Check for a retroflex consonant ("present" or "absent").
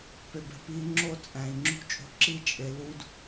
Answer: absent